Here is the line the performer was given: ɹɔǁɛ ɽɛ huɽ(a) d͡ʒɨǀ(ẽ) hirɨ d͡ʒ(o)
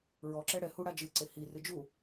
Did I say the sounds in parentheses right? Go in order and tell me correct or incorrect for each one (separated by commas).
correct, incorrect, incorrect